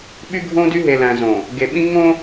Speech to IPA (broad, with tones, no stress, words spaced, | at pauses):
ɓy˦ɡʱõ˦dy˦ ɦe˨læ̃˨zõ˨ | ɡe˨ɓĩ˦ ŋõ˦